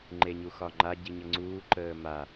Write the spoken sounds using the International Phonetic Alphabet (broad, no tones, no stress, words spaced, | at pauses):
ŋ͡ǃeɲuxɒŋ͡ǃa ɟiɲəŋ͡ǀuː ǃəːma